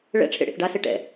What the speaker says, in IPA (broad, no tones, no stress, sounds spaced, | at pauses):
ɭ ɛ̰ ʈ͡ʂʰ ḛ ɽ ḛ θ ɖ a s e ʈ ɛ̰